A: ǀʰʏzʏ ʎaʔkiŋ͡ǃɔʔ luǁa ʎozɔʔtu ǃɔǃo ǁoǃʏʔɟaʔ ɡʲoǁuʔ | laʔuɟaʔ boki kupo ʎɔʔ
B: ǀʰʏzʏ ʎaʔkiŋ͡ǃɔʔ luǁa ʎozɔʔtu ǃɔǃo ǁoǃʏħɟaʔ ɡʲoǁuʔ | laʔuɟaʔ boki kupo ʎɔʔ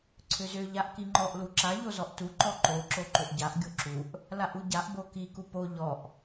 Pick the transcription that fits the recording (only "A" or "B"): A